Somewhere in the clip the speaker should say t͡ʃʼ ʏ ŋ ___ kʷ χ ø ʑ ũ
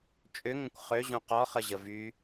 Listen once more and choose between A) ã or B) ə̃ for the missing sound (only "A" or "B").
B